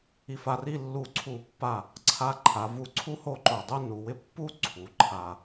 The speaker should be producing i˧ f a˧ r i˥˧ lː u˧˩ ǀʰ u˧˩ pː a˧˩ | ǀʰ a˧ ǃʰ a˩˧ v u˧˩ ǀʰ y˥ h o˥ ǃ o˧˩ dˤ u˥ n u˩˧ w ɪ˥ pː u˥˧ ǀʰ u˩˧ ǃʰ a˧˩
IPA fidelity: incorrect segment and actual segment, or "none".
y˥ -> u˥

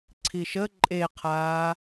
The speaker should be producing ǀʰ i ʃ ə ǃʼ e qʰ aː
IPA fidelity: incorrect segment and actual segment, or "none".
none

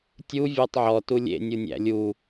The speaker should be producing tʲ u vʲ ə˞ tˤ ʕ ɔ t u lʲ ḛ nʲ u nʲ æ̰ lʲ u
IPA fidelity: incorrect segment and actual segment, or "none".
none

